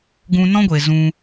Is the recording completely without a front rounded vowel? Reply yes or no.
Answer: yes